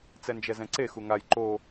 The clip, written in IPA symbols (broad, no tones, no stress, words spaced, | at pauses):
t͡sɛnd͡ʒɛzɛ̃ǀe xuŋaj ǃo